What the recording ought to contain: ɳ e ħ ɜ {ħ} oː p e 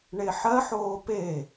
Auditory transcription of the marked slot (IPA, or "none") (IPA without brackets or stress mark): ħ